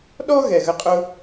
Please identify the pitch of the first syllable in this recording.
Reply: high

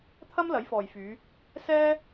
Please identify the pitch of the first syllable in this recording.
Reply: high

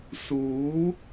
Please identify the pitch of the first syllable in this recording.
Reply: rising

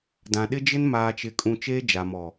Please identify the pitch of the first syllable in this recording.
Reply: low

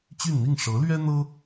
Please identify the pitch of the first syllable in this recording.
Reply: falling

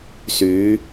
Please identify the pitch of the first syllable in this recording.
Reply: rising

